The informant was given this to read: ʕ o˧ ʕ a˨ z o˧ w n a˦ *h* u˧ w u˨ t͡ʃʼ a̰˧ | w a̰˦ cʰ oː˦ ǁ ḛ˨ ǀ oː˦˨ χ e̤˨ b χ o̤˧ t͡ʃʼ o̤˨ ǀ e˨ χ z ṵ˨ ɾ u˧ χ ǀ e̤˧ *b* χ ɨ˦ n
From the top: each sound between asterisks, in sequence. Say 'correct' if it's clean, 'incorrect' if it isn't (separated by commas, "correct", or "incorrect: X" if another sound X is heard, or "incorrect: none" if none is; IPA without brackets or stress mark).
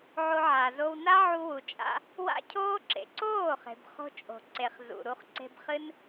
incorrect: ʕ, correct